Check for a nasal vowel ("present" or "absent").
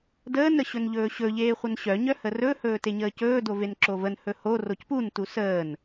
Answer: absent